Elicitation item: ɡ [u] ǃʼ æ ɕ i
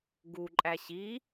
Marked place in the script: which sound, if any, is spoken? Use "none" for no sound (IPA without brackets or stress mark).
u